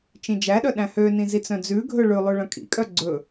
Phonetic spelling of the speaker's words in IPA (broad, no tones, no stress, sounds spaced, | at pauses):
t͡ʃ ĩ d͡ʒ æ ɗ œ ɗ æ̃ h ø n ĩ z i t͡s œ̃ d͡z ʉ ɡʱ ɵ ɭ ʉ lˠ ʉ ɭ œ̃ kʼ ḭ kʼ œ ɡ͡ǀ ɵ